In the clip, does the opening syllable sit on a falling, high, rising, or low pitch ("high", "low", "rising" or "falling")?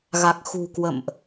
low